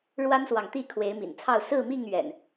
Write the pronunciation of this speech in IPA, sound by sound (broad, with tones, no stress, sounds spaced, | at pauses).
ɻ w a˦ n s w ɑ˨ ŋ t̪ i˥˨ kʰ w e˨˦ ɪ̯ m ḭ˨˩ n t͡sʰ ɑ˥˨ ʊ̯ s ɹ̩˥˨ m i˥˨ ŋ ɥ ɛ̰˨˩ n